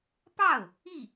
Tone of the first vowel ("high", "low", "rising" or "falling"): falling